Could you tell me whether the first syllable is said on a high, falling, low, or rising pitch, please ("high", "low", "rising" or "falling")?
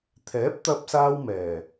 rising